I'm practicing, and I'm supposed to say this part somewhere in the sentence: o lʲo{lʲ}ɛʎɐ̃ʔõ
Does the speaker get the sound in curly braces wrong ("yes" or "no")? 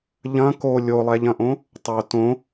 yes